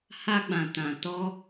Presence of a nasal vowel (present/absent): present